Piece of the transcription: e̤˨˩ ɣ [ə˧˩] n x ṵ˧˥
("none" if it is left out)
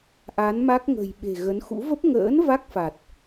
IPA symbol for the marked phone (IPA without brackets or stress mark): ə˨˦